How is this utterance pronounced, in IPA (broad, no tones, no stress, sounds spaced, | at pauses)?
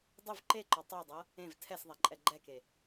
dˤ u v ǃ e ǃ ɔ tˤ u dˤ ɤ | ẽ v tʰ ɛ s ðˤ ɛ ǃʼ ɛ ɡ͡ǃ ɛ k e